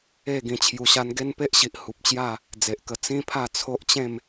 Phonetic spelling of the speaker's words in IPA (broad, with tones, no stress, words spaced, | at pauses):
e˥˧ ɡĩ˧t͡ɕʰju˧ɕa˦n ɡe˦npe˦ʔɕi˨ʔ hu˨p̚t͡ɕja˥˧ | d͡ze˨ʔkə˧ t͡sĩ˦pʰa˥˧ t͡sʰo˦ʔt͡ɕẽ˥˧m